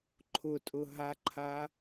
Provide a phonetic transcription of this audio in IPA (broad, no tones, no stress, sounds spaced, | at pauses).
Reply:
ǃʰ ʊ tʼ ʊ ɦ a ǃʰ a